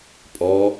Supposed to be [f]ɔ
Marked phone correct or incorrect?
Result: incorrect: pʼ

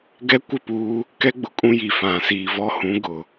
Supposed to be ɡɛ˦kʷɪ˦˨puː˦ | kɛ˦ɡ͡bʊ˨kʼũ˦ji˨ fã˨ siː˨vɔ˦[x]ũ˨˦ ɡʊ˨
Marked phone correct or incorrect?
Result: incorrect: h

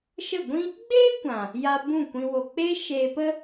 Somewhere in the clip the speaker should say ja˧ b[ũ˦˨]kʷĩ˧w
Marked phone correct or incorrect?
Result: correct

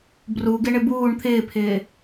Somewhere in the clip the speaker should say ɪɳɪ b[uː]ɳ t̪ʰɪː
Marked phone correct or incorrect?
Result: correct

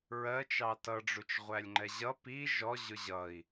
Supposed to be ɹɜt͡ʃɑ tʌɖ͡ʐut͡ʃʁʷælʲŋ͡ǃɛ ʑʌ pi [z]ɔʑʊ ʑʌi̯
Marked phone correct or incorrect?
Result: incorrect: ʒ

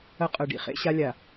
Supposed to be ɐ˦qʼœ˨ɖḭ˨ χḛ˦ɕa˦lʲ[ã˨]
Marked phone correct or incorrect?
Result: incorrect: a˨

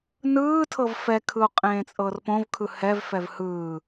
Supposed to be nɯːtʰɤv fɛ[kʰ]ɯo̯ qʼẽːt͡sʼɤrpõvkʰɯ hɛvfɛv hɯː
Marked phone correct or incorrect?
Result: correct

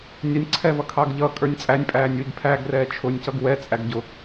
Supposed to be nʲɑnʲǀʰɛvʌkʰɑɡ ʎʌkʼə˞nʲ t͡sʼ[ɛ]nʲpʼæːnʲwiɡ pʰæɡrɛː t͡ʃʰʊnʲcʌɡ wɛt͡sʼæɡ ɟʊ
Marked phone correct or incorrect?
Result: incorrect: æ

